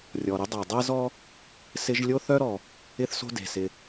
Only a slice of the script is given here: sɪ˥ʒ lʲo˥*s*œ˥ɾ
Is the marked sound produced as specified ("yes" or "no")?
no